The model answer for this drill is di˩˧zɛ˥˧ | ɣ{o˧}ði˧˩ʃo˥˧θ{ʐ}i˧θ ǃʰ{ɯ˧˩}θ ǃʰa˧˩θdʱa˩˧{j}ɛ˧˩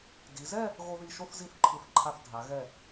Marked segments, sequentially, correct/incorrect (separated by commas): correct, incorrect, correct, incorrect